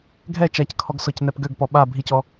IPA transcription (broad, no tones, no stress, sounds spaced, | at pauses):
ɡʱ ɛ t͡ʃ a c kʰ ɔ ɡ s ɔ c n ɛ p ɡ ø ɡ p ɔ ɓ a bʱ i c ɔ